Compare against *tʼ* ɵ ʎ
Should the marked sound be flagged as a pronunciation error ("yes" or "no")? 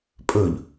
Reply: yes